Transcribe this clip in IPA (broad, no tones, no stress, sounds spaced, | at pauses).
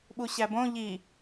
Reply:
ɓ u ɕ æ b õ ʎ i